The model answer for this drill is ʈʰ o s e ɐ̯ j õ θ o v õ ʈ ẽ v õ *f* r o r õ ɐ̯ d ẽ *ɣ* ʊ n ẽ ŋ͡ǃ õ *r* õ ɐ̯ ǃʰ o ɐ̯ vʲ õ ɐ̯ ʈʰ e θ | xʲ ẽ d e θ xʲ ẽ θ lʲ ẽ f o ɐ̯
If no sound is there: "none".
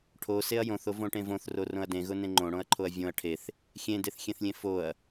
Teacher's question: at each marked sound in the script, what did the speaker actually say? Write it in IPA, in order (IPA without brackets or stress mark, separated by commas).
θ, ɣ, ɽ